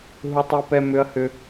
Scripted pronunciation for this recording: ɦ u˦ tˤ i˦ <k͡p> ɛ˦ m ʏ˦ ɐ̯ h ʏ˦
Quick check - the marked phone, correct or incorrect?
incorrect: p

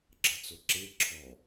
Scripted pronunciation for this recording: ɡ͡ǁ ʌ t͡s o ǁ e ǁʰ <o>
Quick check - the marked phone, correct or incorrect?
incorrect: ɔ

